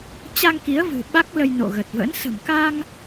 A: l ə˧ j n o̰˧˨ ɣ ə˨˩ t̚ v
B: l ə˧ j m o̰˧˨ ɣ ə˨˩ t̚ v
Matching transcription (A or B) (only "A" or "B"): A